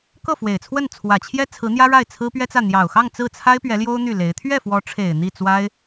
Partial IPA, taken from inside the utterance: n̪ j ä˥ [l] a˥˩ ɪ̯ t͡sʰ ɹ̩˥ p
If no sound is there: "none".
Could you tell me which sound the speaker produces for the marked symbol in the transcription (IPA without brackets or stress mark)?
ɻ